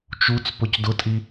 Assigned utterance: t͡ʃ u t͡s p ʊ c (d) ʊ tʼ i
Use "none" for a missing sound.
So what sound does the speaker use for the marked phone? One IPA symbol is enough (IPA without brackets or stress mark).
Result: d